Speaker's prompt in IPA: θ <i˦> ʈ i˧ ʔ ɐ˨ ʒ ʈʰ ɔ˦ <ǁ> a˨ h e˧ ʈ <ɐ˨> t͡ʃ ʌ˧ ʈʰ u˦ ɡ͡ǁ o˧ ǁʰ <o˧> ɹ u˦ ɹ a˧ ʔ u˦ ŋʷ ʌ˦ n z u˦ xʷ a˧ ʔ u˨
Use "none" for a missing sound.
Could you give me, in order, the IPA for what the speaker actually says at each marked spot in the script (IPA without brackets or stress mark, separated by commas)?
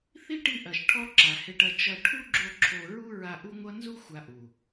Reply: i˦, ǁ, ɐ˧, o˧